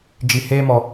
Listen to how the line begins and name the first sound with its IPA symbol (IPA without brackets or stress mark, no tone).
d͡ʒ